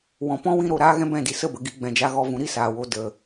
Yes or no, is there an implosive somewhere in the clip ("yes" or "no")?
no